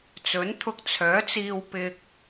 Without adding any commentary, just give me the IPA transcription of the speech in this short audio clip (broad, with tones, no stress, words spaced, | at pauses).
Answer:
t͡sɵ˨˥nt̪ʰʊ˧k̚t͡sʰœː˨˥t͡siː˧w pɪ˧k̚